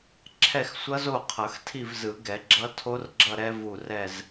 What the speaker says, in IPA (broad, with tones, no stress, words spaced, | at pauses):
ǁʰɛ˦˨xsʷʌ˦˥zo˦˨qʰʌ˨˩˦x tʰi˦˨vzɯ˨˩˦ɡɛ˨˩˦ɡ͡ǁʌ˦˥ tʰo˦˥rɡ͡ǁʌ˦˨ ɾɛ˦˥vu˦˨ rɛ˦˨z